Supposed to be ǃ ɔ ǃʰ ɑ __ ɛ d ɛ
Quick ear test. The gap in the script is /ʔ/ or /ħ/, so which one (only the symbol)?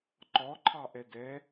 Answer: ʔ